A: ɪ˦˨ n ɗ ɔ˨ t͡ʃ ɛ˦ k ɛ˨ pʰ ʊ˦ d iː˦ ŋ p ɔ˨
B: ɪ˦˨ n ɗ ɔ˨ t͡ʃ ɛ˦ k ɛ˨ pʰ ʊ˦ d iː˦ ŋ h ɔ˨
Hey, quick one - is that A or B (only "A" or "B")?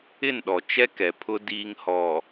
B